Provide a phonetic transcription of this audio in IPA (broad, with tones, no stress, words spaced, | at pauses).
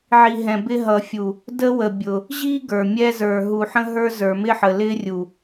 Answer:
ʕi˨ ɦɛ̃˨bɪ˦ ɦʌ˨fʲu˨ | də˦wə˨bʲʊ˨ | ʑi˦ ɡə˞˨mʲɛ˦ zə˞˨ ɦu˨ħə̃˦ɦə˞˦ zə˞˨mɪ˦ħə˨ lɪ˦rʲu˨